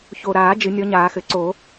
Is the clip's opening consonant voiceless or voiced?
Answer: voiceless